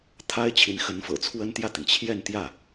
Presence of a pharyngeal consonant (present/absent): absent